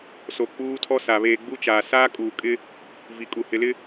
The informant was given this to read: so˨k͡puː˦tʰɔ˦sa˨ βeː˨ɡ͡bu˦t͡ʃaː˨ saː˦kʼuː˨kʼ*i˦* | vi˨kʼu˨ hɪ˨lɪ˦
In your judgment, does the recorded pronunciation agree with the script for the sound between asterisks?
no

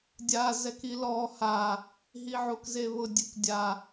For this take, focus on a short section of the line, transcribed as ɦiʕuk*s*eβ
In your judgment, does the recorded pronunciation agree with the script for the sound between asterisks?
no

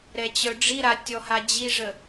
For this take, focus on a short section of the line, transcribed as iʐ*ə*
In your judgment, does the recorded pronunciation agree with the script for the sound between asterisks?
yes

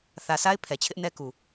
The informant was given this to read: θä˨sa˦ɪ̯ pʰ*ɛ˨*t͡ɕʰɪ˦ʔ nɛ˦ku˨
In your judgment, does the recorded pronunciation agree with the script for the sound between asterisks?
yes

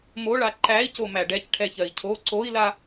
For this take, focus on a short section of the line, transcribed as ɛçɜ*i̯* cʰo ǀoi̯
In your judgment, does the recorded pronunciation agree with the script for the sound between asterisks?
yes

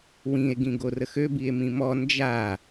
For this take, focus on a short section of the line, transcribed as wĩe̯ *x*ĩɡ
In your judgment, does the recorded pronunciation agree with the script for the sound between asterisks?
no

